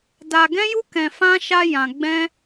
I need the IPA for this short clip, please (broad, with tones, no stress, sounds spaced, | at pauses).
d a˧ ɡ ɛ̃˦ j u˦ k ɛ̃˧ f ã˦ ʃ a˧ j ã˧ ɡ͡b ɛ̃˦